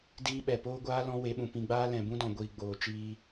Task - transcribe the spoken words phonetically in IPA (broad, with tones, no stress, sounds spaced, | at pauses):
d iː˦ ɓ ɛ˨ p oː˦ ɡʷ aː˦ l ɔ̃˦ w e˨˦ ɓ ũ˨ p ĩ˧ ɡ͡b aː˦ l ɛ̃˨ b ũ˦ d ɔ̃˨ ɡʷ iː˨ ɡ͡b oː˨ t͡ʃ iː˧